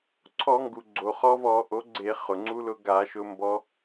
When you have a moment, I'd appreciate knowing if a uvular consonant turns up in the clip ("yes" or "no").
yes